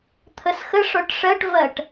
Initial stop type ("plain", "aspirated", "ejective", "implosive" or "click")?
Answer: aspirated